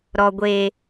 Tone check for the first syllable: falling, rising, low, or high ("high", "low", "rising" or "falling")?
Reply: low